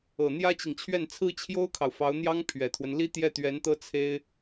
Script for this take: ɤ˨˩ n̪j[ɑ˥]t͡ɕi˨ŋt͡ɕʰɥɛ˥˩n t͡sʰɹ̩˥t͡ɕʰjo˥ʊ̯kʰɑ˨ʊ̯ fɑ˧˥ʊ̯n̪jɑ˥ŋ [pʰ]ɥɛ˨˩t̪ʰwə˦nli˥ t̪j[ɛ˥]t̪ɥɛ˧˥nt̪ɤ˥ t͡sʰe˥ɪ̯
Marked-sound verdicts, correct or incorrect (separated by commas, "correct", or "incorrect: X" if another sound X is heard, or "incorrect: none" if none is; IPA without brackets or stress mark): incorrect: ä˥, correct, incorrect: ɛ˥˩